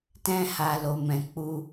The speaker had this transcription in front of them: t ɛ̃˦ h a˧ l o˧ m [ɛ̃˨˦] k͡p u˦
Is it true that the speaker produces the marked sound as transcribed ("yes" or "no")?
no